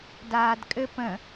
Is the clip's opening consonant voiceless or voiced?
voiced